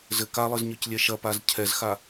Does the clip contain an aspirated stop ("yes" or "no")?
yes